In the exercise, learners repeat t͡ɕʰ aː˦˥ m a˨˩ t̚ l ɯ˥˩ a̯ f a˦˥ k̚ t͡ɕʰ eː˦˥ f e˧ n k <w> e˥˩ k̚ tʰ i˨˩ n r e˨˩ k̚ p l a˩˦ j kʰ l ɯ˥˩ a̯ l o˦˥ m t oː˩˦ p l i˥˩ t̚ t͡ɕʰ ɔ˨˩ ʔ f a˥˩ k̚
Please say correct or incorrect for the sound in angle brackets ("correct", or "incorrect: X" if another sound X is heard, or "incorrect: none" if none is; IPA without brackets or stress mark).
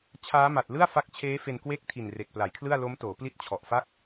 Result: correct